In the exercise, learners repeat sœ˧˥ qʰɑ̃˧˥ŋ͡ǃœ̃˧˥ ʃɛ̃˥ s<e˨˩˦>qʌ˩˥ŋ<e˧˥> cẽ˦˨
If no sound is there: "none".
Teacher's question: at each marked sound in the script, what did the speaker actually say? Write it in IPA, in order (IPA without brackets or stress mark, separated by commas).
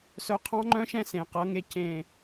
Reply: ẽ˨˩˦, e˧˥